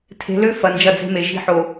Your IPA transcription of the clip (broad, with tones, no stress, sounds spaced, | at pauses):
tʰ e̤˨˦ l ø˦ f ɐ˨ n d͡ʒ ɐ˦˨ d͡z e̤˦ m e˨ ʒ i̤˦ ħ o˨